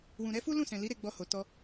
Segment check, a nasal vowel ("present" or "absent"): present